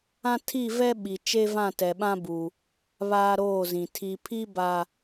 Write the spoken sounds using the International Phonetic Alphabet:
ã˦ tʰ i˦˨ v ɛ˦ ɓ i˨ t͡ʃ e˦ v ã˦˨ t ɛ˨ ɓ ã˦ b u˨ | β aː˦ ɾ oː˦˨ z ĩ˨ tʰ i˨ pʰ i˦ b a˨

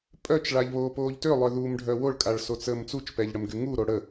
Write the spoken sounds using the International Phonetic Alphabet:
pʼ œ t͡ʃ ɭ a ʎ β oː p oː ʎ t ø lˠ œ ð uː m ɖʱ œ w o ɭ kʼ a ɭ s o t͡s əː m t͡s u t͡ʃ p ɛ ʎ ɽ ə m ɡ y ŋ u ɾ o ɽ ə

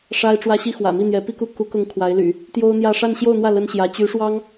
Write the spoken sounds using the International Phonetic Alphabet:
ʂ a˥ ɪ̯ ʈ͡ʂ w ä˥ ɕ i˥ x w ä̰˨˩ m i˥˩ n̪ j ɛ˧˥ p i˥ k u˥˩ k u˧˥ k ʊ˧˥ ŋ kʰ w a˧˥ ɪ̯ l y̰˨˩˦ | t̪ j o˥ ʊ̯ n̪ j ä˥˧ ʂ a˥˧ n ɕ j o˥˧ ʊ̯ n̪ w ä˥˩ l ə˥ n ɕ j ä˧˥ t͡ɕ y˧˥ ʂ w ɑ˥ ŋ

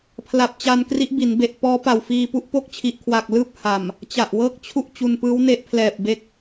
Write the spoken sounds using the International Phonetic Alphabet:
pʰ l a˨˩ p̚ t͡ɕ a˧ n k r i˦˥ ʔ b i˩˦ n b e˨˩ ʔ p ɔː˦˥ p a˨˩ w f iː˧ p u˥˩ ʔ p o˥˩ k̚ t͡ɕʰ i˨˩ ʔ kʰ w a˨˩ k̚ l ɯː˥˩ p̚ h a˨˩ m | t͡ɕ a˨˩ ʔ w ɤː˥˩ k̚ t͡ɕʰ u˥˩ ʔ t͡ɕ u˧ n p ɯː˦˥ w n e˦˥ ʔ pʰ l ɛː˨˩ p̚ b e˦˥ k̚

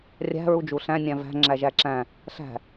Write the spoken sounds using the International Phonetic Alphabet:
rʲ æ̤ ɹ u d͡ʒ u ɬ æ̃ nʲ æ̃ v æ̤ ŋ͡ǁ æ ʒ æ ǁ æ̃ | ɬ æ̤

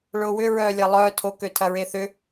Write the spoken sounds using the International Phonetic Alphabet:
ɭ ʊː w ʏ ɹ œː lʲ ɐ lˠ œː tʰ o k ø tʰ ɐ ɹ e θ ʏ

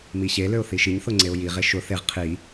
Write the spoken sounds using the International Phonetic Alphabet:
m i ɕ e l ø ʊ̯ θ i ʃ i ɲ θ ʊ ŋ͡ǀ e ʊ̯ j i ʁ e ʃ ʊ θ e ʁ qʰ i

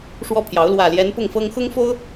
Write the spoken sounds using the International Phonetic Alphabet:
ʂ w ɔ˥˩ pʰ j ɑ˧˥ ʊ̯ l w ä˨˩ l j ɛ˧˥ n p ʊ˥˩ ŋ f ɤ˥ ŋ x ʊ˥ ŋ f o˥ ʊ̯

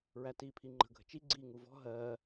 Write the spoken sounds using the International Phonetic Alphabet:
ɹ æ t iː pʰ i ŋ͡ǃ ə̤ ɡʱ ə̤ t͡ʃ i ɡ͡ǀ iː ŋ u v ɔ̤ ɦ ɜː

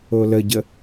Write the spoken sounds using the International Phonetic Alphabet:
o l ə ɟ ə

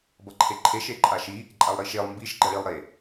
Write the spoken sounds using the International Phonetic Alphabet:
b ʌ ǃʰ e ǃʰ e ʃ e ǃʼ a ʃ i | ǃʼ a lˠ ɾ i ʃ e lˠ m b i ʃ ɡ͡ǃ ʌ ɭ i lˠ ɾ e

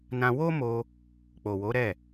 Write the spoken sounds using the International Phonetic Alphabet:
n ã˧ w o˦ m o˧ | k͡p o˨ w o˨˦ ɾ ɛ˦˨

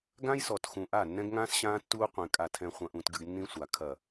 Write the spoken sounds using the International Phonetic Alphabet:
ɡ ã˦ j s ɔ˨ t x ũ˨ ʔ a˦˨ nː ɛ̃˦ ɡ ŋ ãː˦ s ɕ ãː˦ tː uː˦ qʷ ẽ˨ kʼ a˨ tʰ ɛ̃˨ χʷ ɐ̃˨ ʔ ũː˨ t ɡ ɨ˨ ɡ nː ĩ˦ sʷ a˨ kʰ ɐ˨

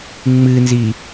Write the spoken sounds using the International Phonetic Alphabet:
ŋ͡m ɨ n z i

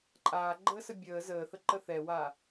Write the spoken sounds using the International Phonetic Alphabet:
ǃʼ aː ɡ͡ǃ əː s ə bʲ əː z əː θ ə ǃ ə θ ɛ w aː

